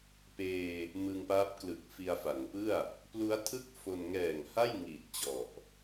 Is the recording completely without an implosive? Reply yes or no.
yes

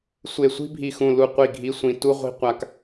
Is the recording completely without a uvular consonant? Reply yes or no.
no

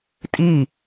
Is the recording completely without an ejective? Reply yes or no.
no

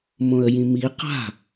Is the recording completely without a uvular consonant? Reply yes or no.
no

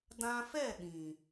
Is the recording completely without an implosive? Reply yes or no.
no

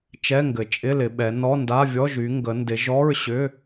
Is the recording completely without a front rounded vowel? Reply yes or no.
no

